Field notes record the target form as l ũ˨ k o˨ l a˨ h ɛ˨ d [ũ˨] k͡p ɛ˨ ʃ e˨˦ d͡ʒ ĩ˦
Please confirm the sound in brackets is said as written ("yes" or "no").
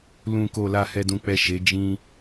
yes